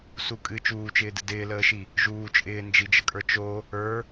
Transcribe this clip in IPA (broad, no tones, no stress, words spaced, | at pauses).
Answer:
sukʼɨ t͡ʃuːt͡ʃɪːdɨ dɪːləːʃi | ʒuː t͡ʃʼɪːnd͡ʒid͡ʒəkʼə˞ t͡ʃo | ə˞